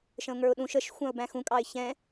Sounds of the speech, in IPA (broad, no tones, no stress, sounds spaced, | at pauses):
ʃ ə̃ ʊ̯ ŋ ə˞ ʊ̯ ɗ ũ ʃ ə ʃ xʷ ɑ̃ ʊ̯ b æ̃ x ũ kʼ ɑ ɪ̯ ç ɛ̃